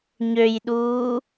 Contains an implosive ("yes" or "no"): yes